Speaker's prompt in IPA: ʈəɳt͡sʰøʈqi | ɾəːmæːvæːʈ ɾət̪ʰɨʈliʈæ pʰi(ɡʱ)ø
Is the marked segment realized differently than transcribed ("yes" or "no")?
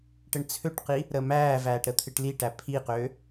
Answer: yes